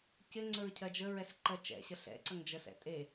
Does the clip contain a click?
yes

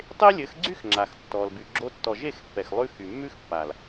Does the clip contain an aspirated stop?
no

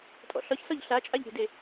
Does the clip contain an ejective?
yes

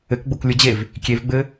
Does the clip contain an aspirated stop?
no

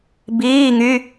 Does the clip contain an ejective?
no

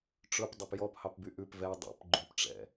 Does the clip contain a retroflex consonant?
yes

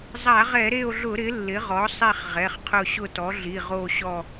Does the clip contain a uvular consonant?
yes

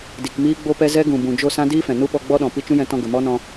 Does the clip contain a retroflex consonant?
no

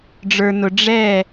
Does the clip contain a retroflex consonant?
yes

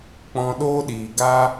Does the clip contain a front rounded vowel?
no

